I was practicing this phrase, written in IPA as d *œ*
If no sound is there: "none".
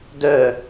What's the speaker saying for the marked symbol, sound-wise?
œ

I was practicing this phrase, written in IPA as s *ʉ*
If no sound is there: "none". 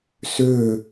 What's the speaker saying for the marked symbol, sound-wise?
ø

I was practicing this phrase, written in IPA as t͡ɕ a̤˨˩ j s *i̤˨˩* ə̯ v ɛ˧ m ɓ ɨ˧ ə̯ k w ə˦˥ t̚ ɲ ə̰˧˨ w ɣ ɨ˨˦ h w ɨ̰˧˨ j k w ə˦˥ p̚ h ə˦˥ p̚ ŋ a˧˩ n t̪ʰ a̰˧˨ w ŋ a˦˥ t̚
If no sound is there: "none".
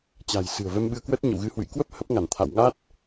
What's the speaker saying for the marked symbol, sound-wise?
ɨ̤˨˩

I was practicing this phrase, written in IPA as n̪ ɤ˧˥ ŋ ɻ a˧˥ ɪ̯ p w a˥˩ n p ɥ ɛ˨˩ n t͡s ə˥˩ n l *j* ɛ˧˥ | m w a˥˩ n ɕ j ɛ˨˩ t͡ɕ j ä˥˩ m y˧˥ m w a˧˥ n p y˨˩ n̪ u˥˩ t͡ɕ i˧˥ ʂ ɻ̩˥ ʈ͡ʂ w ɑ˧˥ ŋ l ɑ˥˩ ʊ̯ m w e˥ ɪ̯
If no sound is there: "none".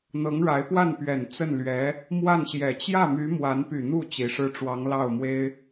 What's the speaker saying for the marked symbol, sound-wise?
ɥ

